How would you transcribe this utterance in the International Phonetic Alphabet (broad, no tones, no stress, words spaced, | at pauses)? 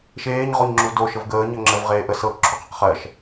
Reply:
ʃeːɲ ʁoɲŋ͡ǁudo ʃəvɡəː ɲɜŋ͡ǁəv ʁeːʔə sɤ ǁʰuqəqχɜʃ